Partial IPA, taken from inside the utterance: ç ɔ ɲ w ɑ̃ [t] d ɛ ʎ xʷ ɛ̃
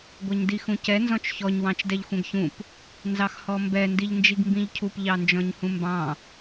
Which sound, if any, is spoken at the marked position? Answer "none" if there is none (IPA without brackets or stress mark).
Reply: t͡ʃ